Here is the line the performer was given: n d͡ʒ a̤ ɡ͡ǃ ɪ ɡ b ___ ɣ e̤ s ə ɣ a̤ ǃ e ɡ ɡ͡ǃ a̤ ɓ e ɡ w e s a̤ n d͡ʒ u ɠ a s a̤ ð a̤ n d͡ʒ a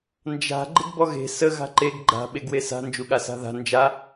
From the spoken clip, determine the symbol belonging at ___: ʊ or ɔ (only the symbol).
ɔ